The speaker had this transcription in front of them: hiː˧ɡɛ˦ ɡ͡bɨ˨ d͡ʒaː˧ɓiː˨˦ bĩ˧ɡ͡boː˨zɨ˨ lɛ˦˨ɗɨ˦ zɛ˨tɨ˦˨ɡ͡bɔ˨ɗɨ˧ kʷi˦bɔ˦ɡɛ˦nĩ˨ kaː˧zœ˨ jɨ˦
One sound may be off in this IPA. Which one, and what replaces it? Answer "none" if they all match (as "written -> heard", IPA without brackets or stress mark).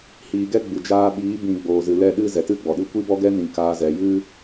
œ˨ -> ɛ˨